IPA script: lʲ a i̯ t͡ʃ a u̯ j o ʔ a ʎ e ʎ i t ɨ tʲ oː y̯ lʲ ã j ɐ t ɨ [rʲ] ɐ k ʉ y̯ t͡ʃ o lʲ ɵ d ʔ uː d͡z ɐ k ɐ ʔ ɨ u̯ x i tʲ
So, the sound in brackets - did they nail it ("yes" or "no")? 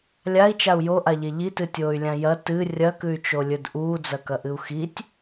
yes